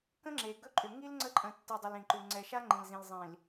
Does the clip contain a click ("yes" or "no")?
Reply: yes